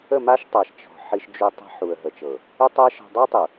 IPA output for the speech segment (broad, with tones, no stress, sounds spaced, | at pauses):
ə˦˨ m a˦ ʃ tˤ a˨ ʃ t͡ʃ ɔ̤˨ ħ i˦ ʃ d͡ʒ u˦ tˤ i̤˦ ħ u˨ ə̯ ɦ ə˨ t͡ʃ ɤ˨ | ʏ˦ tˤ ɛ˦ ʃ ɔ̤˨ dˤ ʏ˦ ə̯ tˤ u˨